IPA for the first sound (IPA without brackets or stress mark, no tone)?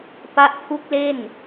p